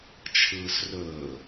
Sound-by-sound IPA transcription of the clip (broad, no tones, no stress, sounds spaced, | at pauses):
t͡ʃʰ ɯː s r ɵː